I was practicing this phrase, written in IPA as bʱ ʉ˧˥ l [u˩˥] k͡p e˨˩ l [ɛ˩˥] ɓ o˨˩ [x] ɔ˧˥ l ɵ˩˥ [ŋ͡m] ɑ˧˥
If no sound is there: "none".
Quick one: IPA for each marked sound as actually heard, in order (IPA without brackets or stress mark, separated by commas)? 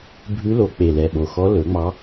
o˩˥, ɛ˨˩, x, ŋ͡m